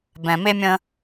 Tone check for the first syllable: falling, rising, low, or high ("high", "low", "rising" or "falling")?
low